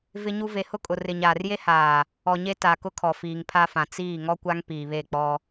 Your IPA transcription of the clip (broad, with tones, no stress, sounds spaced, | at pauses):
v ɪ˦ ɲ u˦ v e˨ h ʊ˦ kʼ ʊ˨ r ɪ˨ ɲ aː˨ r j e˦ h aː˨ | ɔ˨ ɲ e˦ t a˨ k ʊ˦ kʰ ɔ˨ f iː˨ ŋ pʰ a˦ f ã˨ t͡s iː˦˨ ŋ ɔ˦ kʷ a˦ ŋ p iː˨ β e˦˨ k͡p ɔ˦